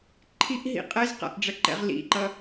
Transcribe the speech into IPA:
ǃʰ i ʔ ɦ ḭ qʼ ɛ z q a̰ ʔ ɖ͡ʐ ɐ ǃ ɛ̰ ʁ l ḭ ǃ ʌ

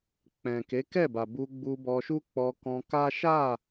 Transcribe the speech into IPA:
k͡p ɛ̃˨ k e˨˦ k ɛ˦˨ b a˨ b u˧ ɡ͡b u˧ b ɔ˧ ʃ u˦ k͡p ɔ˧ k ɔ̃˧ k a˦ ʃ a˦˨

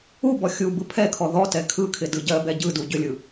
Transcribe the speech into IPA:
u b ɔ xʲ u b ɯ pʰ ɛ kʰ ɔ ð ɔ t ɛ kʰ ɯ kʰ ɪ d ɯ ɟ ɜ b ɛ ɟ ɯ d u ɟ ʏ lʲ ɯ

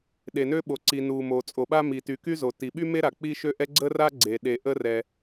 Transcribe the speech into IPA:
ɗ e˩ n ø˥ ɓ o˩ ǀ i˩ n u˩ m o˩ t͡sʼ o˩ ɓ a˥ m i˩ t y˩ k y˥ z o˩ t i˩ ɓ y˥ m e˥ ɾ a˩ k͡p i˥ ʃ ø˥ ʔ ɛ˥ ɡ͡ǀ ə˥ r a˥ ɡ͡ǀ e˩ ɗ e˩ ʔ ə˥ r ɛ˩

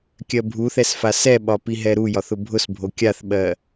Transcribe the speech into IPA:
kʲ ɜ bʱ u θ ɛ s f a s ɛ ɓ ɒ p i ɦ ɛ ɾ u j ɒ θ ʊ bʱ ʊ s bʱ o kʲ a θ ɓ ɜ

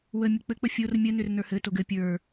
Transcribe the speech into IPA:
w ə mʲ ə k͡p ɘ k͡p ə fʲ o r mʲ ə n ʏ r n ə˞ h ɘ t o ɡ ɘ pʲ ə˞

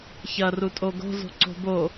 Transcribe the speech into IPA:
ç ɐ r u tʼ o ɡ o̤ z o̤ ǀ o̤ b o

